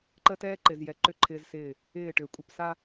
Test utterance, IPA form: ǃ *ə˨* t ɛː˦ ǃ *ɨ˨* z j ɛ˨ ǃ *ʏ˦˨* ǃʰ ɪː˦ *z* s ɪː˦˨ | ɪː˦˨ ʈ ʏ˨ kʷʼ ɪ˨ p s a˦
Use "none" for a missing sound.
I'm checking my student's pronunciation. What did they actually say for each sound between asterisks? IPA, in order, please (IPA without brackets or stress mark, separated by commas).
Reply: ə˦, ɪ˨, ʏ˦˨, z